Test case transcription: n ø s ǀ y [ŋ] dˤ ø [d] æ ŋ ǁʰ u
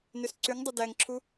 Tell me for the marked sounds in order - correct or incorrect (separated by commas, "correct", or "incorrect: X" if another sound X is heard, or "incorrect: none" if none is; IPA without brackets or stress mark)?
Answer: correct, correct